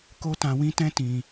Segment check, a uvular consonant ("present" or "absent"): absent